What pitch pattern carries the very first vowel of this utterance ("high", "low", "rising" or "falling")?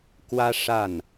high